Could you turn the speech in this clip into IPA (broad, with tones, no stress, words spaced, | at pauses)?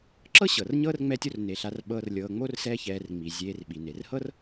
ǁɤ˥ɕɤ˩r ɲɤː˥rŋ͡mɛ˦tʲo˦r ne˩ɬa˨rɓɤː˨r lʲɤː˨ŋ͡mo˥rsɛː˦çɛː˨r ŋ͡mi˩ zʲeː˨rɓi˩ne˩rhɤ˥r